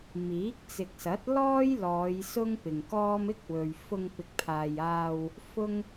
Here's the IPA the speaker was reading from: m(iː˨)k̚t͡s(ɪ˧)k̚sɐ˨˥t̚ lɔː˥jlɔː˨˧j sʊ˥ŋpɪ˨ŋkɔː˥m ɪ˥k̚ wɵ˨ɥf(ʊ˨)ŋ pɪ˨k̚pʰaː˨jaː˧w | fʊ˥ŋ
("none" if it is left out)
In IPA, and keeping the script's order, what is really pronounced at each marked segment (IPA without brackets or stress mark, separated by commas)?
iː˨˥, ɪ˨, ʊ˧